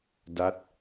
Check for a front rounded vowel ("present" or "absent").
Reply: absent